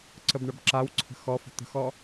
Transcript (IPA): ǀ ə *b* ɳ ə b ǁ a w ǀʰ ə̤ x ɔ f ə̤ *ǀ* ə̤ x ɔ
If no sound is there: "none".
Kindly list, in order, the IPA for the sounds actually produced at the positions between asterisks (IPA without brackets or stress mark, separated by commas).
b, t̪